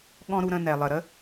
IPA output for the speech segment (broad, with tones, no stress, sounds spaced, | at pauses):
ɠ ɔ̃˦ ɾ u˧ ɾ ə̃˧ n ɛ˨ lˠ ə˨ ɾ ə˦